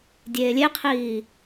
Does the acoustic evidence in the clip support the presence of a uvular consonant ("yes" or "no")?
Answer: yes